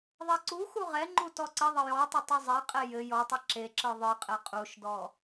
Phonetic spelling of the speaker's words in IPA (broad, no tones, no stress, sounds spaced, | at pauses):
ðˤ ɛ ǀ u x u ʁ ɛ ŋ͡ǃ u t ɔ ǀ ɪ ðˤ ə j ɔ tˤ ɘ tˤ o zˤ ɛ qʼ ɛ j ɘ j ɔ tˤ ɯ ǁ e ǁ ɯ ðˤ ɯ qʼ ɘ qʼ u ʃ d ɔ